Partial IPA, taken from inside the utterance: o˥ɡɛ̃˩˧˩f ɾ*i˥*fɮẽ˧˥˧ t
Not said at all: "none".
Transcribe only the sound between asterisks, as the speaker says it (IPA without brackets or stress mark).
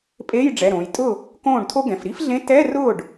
i˥